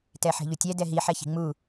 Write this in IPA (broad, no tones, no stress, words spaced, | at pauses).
tɛħe̤ʎutʲɛ dɛɦi ħɛçi̤ŋ͡mu